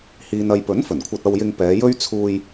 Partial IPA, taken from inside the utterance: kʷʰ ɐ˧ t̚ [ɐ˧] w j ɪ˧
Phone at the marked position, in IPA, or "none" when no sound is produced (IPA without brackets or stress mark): ɐ˧